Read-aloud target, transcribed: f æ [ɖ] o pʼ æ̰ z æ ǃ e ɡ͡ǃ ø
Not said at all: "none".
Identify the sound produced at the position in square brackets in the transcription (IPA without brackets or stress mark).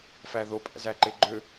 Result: ð